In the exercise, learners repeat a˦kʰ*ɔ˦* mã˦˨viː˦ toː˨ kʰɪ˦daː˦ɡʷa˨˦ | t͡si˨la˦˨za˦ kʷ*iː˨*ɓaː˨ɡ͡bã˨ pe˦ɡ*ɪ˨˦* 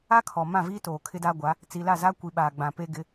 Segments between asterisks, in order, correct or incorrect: incorrect, incorrect, correct

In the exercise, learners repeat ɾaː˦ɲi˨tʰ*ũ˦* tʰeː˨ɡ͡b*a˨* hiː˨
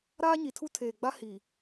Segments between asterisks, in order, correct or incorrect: incorrect, incorrect

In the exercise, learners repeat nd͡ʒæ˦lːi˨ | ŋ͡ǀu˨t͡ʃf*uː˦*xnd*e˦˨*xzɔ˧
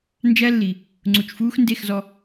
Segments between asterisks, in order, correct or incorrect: correct, correct

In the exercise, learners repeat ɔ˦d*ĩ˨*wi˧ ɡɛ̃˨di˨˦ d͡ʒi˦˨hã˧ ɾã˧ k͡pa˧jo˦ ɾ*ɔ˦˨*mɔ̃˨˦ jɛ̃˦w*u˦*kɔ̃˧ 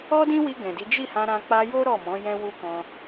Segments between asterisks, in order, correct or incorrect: incorrect, correct, correct

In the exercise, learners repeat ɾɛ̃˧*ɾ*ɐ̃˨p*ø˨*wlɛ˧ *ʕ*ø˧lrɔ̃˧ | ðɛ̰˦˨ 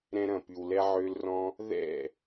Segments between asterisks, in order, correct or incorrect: correct, incorrect, correct

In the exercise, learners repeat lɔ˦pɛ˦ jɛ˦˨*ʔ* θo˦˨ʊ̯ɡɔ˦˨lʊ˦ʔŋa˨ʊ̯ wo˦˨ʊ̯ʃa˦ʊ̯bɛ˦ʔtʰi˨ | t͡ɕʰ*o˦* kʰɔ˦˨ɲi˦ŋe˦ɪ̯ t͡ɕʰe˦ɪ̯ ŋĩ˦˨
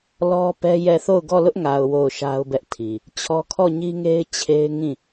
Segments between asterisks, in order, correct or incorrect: incorrect, incorrect

